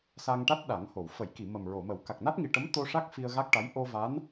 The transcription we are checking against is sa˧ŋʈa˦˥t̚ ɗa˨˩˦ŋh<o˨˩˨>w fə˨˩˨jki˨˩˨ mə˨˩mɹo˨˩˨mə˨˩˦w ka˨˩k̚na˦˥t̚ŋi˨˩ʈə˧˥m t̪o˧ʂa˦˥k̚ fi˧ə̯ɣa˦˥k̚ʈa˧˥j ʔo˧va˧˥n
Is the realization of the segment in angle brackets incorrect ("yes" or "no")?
no